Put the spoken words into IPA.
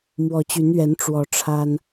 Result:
m w ɔ˨˩ t͡ɕ y˨˦ n ɥ ɛ˨˦ n ʈ͡ʂ w ɔ˨˦ ʈ͡ʂʰ a˦ n

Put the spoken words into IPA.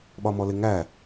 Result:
ɓ ɒ m ɔ l ɪ ŋ æ

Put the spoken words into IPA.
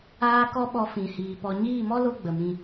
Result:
aː˦ k ɔ˦ ɓ ɔ˧ f ĩ˨ h iː˨ p ɔ˨ ɲ iː˦˨ m ɔ˦ l o˦ ɡ͡b ə˨ m ĩ˧

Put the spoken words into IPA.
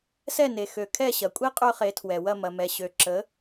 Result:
s ɛ˥˩ n e˩ x ø˩ kʰ ɛ˥˩ ɕ ɐ˩ kʷʼ i˥ qʼ ø˥ χ e˩˥ tʰ w ɛ˩ w ɐ˥˩ m ɐ˩ m ɛ˩ ɕ ø˩ ǁ ə˩˥

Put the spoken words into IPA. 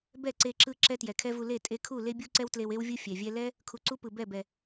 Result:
b ɛ˦˨ ǀ e˧ ǁ ɯ˧ ǁ ɛ˦ t j ɛ˨ kʰ ɛ˦ v u˧ l e˦˨ tʼ e˧ kʰ u˦˨ l e˦ bʲ u˦ ǀ ɛ˦ w t l e˧ w e˦ w vʲ ɯ˦ fʲ ɛ˨ vʲ ɛ˦ l ɛ˦ | kʰ u˧ ǀ u˦ p ɯ˨ b ɛ˦˨ b ɛ˨

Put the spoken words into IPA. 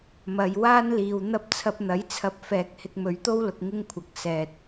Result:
m ɐ˨ j w aː˥ n l iː˨ w n̪ ɐ˥ p̚ t͡sʰ ɐ˧ p̚ n̪ ɐ˨˥ j t͡sʰ ɐ˧ p̚ f ɛː˨ k̚ h ɪ˧ k̚ m ɵ˨˧ ɥ t̪ o˥ w l ʊ˧ k̚ ŋ ɪ˥ ŋ kʷʰ ɐ˨˥ k̚ s ɛː˨ t̚

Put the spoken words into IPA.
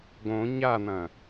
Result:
ɡ õ ɲ a n̪ ɐ̃

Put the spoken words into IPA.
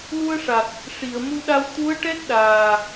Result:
l u˧ ə̯ ʂ a˨˩ k̚ | ʂ i˨˩˨ ə̯ m u˧ ɗ a˧ w t̪ u˧˥ ə̯ ʈ ɛ˦˥ t̚ ɗ aː˨˩

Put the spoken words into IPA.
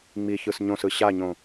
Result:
ŋ͡m i ç ɯ s ɲ õ s ɯ ɕ a ɲ õ

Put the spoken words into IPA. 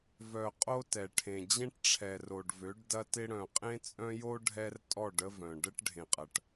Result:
v œ˨ qʼ o˦ t ɛ˨ ʈʰ ẽ˨ d͡ʑ ẽ˦ ʈ ʈ͡ʂʰ ɛ˨ r o˨ ɖ v ø˨˦ ɖ d ɐ˦ t ɪ˦ ɽ œ̃˨ qʼ ẽ˦ t͡sʼ œ̃˦ j o˦ ɖʱ ɛ˦ r tʼ ɔ˦˨ ɖ ə˦ v œ̃˨ ɖ ə˦ ʈ ɖʱ ẽ˨ qʼ ɐ˨ ʈ

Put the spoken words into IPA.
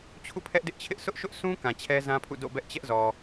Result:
t͡ɕʰ ṵ˦˨ pʰ ɛ˦ ʔ d ɪ˦ ʔ t͡ɕʰ ɪ˦ ʔ s ʊ˦ ʔ ʃ ʊ˦ ʔ sʰ ũ˦ k ã˨ t͡ɕʰ ɛ˦ z ã˦ pʰ ṵ˦˨ d o̰˦˨ b ɛ˦ ʔ t͡ɕ ɛ˦ ʔ z ɔ˨

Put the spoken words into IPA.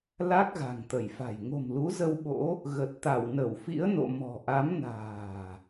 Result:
l a˦˥ k̚ ɣ a̤˨˩ ŋ t̪ ə˧˩ j f a̤˨˩ j ŋ o̤˨˩ m l u˨˦ z ə˧ w ɓ o̰˧˥ | ɣ ə˨˩ t̚ t̪ a˧˩ w n ə˧˩ w f ḭ˧˥ ə̯ n o̰˧˨ m ɔ̤˨˩ ʔ a˨˦ m n a̤ː˨˩

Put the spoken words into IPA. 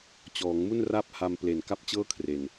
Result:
t͡ɕ ɔː˩˦ ŋ m u˥˩ n r a˥˩ p̚ h a˧ m p l e˨˩ n k a˥˩ p̚ t͡ɕ ɤː˥˩ kʰ r e˨˩ n

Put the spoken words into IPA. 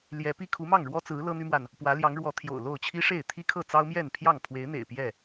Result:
l j ɛ˨˦ p i˦ kʰ u˨˦ m ɑ˥˨ ŋ ɻ w ɔ˦ t͡s ɹ̩˨˦ l ɤ˦ n̪ y˦ m w a˨ n | p w ä˨˦ l j ɑ˨˦ ŋ ɻ w ɔ˨˦ t̪ʰ j o̰˨˩ ʊ̯ l o˥˨ ʊ̯ t͡ɕʰ i˦ ʂ e˥˨ ɪ̯ t̪ʰ i˦ kʰ ɤ˥˨ t͡s ɑ˦ ʊ̯ m j ɛ˥˨ n pʰ j ɑ˥˨ ŋ pʰ w e˨˦ ɪ̯ n̪ ḛ˨˩ ɪ̯ p j ɛ˥˨

